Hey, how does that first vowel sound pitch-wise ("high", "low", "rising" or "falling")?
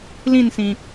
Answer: falling